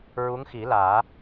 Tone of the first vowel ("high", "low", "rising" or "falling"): rising